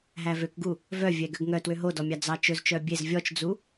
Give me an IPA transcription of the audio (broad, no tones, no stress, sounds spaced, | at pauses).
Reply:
ɦ æ v ø k ɡ u | v œ vʲ ɛ ɡ ø ɡ ŋ œ t w ø ɦ o d ɔ mʲ ɑ d͡z ɑ t͡ʃ ɵ z t͡ʃ œ bʲ e z vʲ ɔ t͡ʃ d͡z u